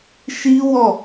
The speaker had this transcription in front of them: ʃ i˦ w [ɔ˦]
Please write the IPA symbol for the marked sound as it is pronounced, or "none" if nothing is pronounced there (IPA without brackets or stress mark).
ɔ˦˨